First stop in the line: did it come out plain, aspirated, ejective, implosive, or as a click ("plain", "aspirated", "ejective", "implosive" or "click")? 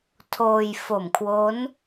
aspirated